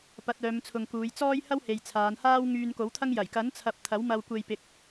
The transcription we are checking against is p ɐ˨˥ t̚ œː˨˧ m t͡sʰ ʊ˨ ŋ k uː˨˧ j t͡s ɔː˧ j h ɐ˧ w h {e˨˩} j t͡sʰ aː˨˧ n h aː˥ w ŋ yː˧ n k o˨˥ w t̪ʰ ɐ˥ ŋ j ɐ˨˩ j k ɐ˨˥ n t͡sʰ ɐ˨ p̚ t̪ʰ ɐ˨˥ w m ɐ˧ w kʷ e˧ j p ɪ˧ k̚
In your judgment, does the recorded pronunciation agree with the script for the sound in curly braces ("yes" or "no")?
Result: no